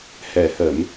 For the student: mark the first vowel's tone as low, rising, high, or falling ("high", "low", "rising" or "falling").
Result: low